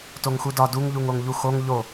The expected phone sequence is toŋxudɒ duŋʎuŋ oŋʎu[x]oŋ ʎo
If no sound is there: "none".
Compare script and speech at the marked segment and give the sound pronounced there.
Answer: x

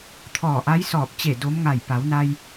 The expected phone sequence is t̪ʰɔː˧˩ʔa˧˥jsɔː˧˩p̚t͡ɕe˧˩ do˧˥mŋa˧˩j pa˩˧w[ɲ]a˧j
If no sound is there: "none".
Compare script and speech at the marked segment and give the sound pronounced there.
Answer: n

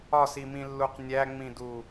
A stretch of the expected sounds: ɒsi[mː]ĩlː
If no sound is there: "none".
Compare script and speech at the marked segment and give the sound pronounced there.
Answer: m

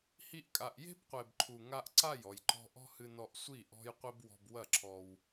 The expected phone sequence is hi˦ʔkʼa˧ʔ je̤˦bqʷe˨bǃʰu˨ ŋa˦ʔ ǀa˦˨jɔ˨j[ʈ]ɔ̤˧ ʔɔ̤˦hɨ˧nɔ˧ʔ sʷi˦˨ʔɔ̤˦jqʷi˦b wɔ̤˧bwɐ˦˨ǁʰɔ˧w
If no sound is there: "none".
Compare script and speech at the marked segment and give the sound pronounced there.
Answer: ǃ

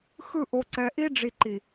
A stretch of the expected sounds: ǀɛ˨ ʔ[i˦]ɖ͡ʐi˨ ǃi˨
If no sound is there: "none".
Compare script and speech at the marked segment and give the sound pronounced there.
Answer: i˦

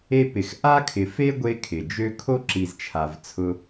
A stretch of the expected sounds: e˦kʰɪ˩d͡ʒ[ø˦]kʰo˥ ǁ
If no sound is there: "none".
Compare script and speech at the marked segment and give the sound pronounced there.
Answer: ø˦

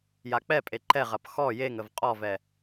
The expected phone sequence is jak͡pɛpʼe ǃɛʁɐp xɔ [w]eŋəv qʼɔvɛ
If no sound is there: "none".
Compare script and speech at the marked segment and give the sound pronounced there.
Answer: j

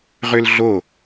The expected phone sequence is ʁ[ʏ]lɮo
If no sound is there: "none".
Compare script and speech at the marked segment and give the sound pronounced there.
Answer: ʏ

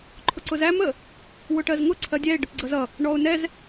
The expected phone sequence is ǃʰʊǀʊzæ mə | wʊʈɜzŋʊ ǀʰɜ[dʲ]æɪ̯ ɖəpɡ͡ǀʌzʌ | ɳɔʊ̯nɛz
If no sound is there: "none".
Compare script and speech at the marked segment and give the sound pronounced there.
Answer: dʲ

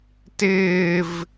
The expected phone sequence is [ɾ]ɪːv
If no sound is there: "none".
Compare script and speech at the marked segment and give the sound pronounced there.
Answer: t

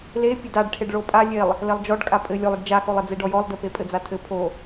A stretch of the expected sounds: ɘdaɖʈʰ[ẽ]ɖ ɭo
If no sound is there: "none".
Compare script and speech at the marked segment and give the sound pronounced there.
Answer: e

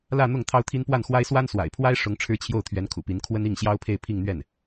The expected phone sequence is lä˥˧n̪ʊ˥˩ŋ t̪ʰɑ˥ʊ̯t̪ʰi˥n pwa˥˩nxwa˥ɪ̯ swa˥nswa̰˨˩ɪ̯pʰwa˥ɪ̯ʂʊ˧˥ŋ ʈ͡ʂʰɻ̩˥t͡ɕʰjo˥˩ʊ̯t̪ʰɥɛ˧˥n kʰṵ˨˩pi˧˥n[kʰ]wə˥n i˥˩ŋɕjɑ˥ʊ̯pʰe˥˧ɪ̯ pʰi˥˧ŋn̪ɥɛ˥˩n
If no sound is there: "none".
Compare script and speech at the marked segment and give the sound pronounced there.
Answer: kʰ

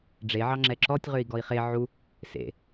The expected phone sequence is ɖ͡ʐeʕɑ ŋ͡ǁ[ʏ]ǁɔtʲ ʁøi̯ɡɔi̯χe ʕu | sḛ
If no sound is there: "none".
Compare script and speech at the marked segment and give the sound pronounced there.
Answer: ɛ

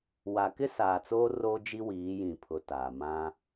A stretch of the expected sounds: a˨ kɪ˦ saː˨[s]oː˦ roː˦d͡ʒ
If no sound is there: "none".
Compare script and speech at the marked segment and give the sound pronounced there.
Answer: t͡s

